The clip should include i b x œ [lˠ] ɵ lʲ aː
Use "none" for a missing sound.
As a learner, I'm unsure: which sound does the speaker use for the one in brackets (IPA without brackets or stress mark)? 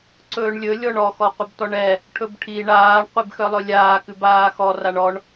lˠ